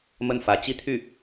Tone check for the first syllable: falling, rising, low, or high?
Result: falling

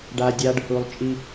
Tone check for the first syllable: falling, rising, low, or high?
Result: low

